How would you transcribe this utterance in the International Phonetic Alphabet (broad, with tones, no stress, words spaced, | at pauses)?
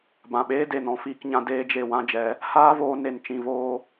bã˨ɓeː˦ de˨nɔ̃˧fiː˧kɲã˧ deː˦d͡ʒe˧ wã˦d͡ʒɛ˨˦ | haː˦voː˧ ne˧nt͡ʃĩ˧voː˦